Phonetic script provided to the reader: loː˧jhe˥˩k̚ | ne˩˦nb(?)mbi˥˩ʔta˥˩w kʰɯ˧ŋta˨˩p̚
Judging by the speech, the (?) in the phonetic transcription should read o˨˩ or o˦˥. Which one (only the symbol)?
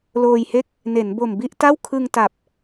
o˨˩